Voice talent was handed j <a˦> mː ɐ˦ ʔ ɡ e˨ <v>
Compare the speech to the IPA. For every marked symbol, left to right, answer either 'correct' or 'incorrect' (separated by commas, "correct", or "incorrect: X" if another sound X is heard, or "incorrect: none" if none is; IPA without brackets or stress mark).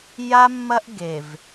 correct, correct